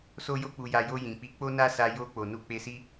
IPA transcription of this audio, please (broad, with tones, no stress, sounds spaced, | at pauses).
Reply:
s o˦ j o˦ k͡p u˧ j a˧ j o˧ j ĩ˨ k͡p i˨˦ k͡p o˦ n a˦ s a˧ j o˧ k͡p o˨ n u˨˦ k͡p e˧ s i˦